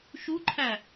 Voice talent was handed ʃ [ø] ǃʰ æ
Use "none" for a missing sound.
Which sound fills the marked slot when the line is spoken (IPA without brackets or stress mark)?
u